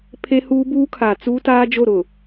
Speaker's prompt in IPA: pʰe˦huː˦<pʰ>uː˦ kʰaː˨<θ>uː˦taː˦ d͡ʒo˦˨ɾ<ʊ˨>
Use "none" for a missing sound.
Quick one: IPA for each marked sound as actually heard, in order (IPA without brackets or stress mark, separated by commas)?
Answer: b, t͡s, ʊ˨